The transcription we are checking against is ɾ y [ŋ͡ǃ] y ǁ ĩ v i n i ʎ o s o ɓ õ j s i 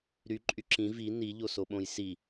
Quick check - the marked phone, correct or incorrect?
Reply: incorrect